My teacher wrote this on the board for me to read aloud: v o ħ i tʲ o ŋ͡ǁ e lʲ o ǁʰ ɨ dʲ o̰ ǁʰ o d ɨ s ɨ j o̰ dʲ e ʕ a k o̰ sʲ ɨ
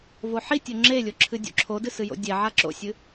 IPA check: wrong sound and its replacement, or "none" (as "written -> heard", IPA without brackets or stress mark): k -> ǁ